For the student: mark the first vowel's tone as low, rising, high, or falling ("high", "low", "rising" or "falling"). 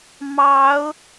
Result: rising